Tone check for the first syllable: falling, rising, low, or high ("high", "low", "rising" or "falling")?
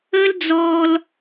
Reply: high